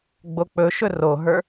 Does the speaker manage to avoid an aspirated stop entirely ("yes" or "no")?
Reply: yes